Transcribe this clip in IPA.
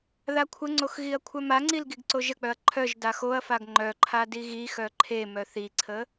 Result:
ð a kʷʰ ə ŋ͡ǀ o x ɣ i ɐ̯ kʷʰ œ m a ŋ͡ǀ i l ɡ i ɡ ǀ o ʒ ə k͡p œ ɐ̯ ǃʰ œ ʒ d a x o ɐ̯ f a ɡ ŋ͡ǃ œ ǃʰ a d i ɣ i x œ ǃʰ e m œ θ i ǀʰ ə

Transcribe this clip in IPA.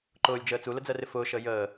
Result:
ǃ ʊː lʲ d͡ʒ əː t͡s u l ə d͡z ɜ r ɪ f ʊː ʃ əː j əː

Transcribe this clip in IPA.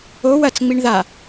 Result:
o w ɐ t͡s ŋ͡m i ɳ ð a

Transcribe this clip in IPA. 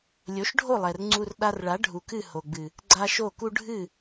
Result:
lʲ o˨˦ ʃ ɖʱ o˦˨ lˠ ɛ˨ r ŋ͡ǀ u˧ r ɗ a˧ r ɭ a˨˦ ɖʱ u˨ k ɨ˦˨ h o˨ ɡ͡b ɨ˨ | ɡ͡ǀ a˧ ʃ o˦˨ k u˦ ɖʱ ɨ˦˨

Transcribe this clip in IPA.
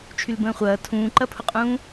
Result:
t͡ʃʰ y l b ə̃ː χʷ ɐː tʰ ũː ǃ ɐ pʰ ʊ qʼ ũː

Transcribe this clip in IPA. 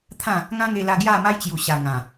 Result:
t̪ʰ ã˥˧ | ŋ ã˦ ŋ e˧ l a˧ ɡ j a˥˧ m a˦ j t͡ɕ j u˨˩ ɕ a˨˩ ŋ ã˨˩

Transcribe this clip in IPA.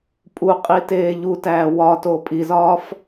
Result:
pʼ u qʼ i t eː ʎ u t æː w ɒ t oː pʼ i z ɒː f

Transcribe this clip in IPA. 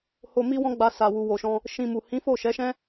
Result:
h o˧ m i˦ w ɔ̃˦ ɡ͡b a˧ s a˨ w u˨ w o˨ ʃ ɔ̃˧ | ʃ ĩ˧ m u˨ h ĩ˨˦ f o˦˨ ʃ ɛ˨˦ ʃ ɛ̃˦

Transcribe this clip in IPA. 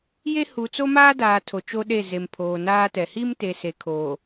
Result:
j e˦ h u˨ t͡s o˦ m aː˦ d aː˨ tʰ o˨ t͡ʃ o˦ ɗ e˦˨ z e˨ m pʰ oː˨ n aː˦ t ɛ˨ h i˦ m t e˨ s e˨ kʰ oː˨

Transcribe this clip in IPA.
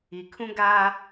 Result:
i˨ kʰ ũ˦ ɡ aː˦

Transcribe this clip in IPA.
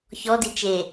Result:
ç ɔ d i t͡ʃ e

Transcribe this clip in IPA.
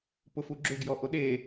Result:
p ʊ f u ɡ͡ǁ ʏ ɡ j ɔ ʔ o ɗ e

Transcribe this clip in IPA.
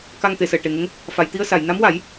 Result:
k a˧ ŋ t̪ e˨˩˨ s əː˨˩˨ ʈ e˨˩˨ ŋ ə˧˥ ŋ | f a˨˩˨ j t̪ i˧ ə̯ s a˨˩˨ j n a˧˥ m w a˨˩˦ j

